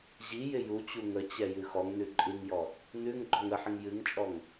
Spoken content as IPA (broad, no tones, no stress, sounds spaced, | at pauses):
ʑ i j ɪ j u t͡ɕ u ŋ ə t͡ɕ ɛ j ʉ x ɔ ŋ n ʉ ǃʼ ɨ ŋ j ɔ | n ʉ ŋ ɡ͡ǃ ɔ ŋ ə ħ ɪ ŋ j ɨ ŋ t͡ʃʼ ɔ ŋ